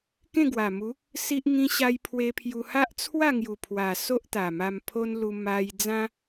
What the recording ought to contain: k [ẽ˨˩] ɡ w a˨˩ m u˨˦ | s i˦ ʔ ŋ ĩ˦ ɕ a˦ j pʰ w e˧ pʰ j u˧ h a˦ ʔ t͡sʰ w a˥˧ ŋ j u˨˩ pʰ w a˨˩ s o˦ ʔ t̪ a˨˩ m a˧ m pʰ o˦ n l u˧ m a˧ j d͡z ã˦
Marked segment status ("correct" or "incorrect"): incorrect